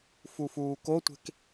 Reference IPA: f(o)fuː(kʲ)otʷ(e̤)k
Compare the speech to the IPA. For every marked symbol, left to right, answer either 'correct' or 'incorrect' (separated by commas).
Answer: incorrect, incorrect, correct